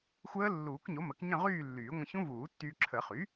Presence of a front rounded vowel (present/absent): present